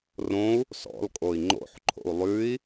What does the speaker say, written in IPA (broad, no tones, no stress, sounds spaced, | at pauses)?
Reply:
r õ u̯ | s ɔ̰ l kʼ o i̯ ŋ͡ǃ o̰ ħ ǃʰ o̰ u̯ lˠ ʉ i̯